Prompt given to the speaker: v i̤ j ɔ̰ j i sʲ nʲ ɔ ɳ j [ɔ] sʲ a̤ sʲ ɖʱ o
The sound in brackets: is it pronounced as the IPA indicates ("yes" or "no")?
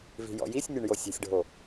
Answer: no